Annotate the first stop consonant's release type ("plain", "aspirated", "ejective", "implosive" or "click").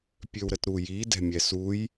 plain